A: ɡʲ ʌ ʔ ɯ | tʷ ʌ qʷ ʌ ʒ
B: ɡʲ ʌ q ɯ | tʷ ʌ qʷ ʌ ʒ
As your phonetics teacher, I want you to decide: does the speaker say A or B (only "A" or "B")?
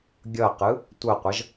B